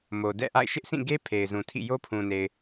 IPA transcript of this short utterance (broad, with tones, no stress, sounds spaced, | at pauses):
m o˨ d ɛ̰˦˨ ʔ a̰˦˨ ɪ̯ ʃ ɪ˦ ʔ s ĩ˦˨ ɡ e˦ pʰ e˨ ɪ̯ z ũ˨ tʰ ḭ˦˨ j o˦ pʰ ũ˨ n e˨ ɪ̯